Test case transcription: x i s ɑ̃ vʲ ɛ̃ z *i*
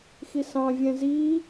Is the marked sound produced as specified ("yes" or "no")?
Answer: yes